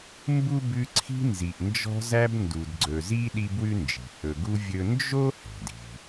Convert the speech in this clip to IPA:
m b u˥ b ʉ˦ ǀʰ i̤˦ n z i˨ ʔ n d͡ʒ ɔ̤˦ z æ˦ b n d u˨ d ɡ͡ǀ ɵ˨ z i˥ ɗ i˥ b w ʉ˥ n d͡ʒ i̤˩ h ɵ˨ ɡ u˦ vʲ ɵ˦ n d͡ʒ o˥ h ɛ̤˩ d i̤˨

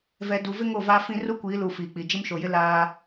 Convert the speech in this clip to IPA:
v ɛ˨ d u˨ v ɪ˦ ŋ o˦˨ v aː˦ f ĩ˦ r u˦ kʷ iː˨˦ l u˨ f iː˨ k͡p i˨ d͡ʒ ɪ˦ m ʃ o˨ j ɪ˦ l aː˦

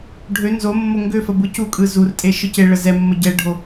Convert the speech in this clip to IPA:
ɖʱ ø n z o mː o ŋ ɡ ø f ə b ɯ c u kʼ ɯ z u r tʼ e ʃ ɯ c e ɭ ə z ɛ mː ə ɟ ɛ ɖʱ o

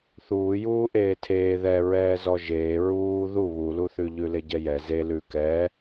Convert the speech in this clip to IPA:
θ uː j uː ʔ eː tʰ eː ð ɛ ɹ ɛː z ɔ ʒ eː ɹ uː ð u β u l u θ ʉ ʎ ʉ l e ɟ ɛ j ɛ z e l ʉ k ɛ

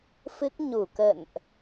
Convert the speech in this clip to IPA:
f ɨ˦˥ k̚ ɲ u˧˩ k ə̰˧˨ n ʔ

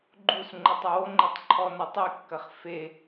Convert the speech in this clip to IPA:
ɡ͡ǃ u s ŋ͡ǃ ɘ tˤ ɐ w o ŋ͡ǃ e tˤ ǃʰ ɔ n ɐ tˤ i kː ɐ χ f e

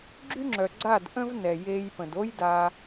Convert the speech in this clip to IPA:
ɡ͡ǁ y˦ ŋ͡ǁ œ˨ ɡ͡ǀ a˦˨ d ʔ ə̃˦ v n ɛ˨ j eː˧ j p ə̃˨ d o˦ j d a˧

